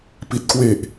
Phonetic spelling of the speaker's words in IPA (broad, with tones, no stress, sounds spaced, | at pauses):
p i˨˩ t̚ k w e˨˩ ʔ